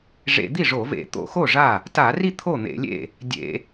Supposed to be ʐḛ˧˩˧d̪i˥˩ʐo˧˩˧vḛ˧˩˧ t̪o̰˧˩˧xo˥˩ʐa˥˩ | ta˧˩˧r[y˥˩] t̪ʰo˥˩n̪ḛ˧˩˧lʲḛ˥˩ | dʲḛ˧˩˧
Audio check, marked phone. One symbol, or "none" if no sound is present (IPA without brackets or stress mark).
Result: i˥˩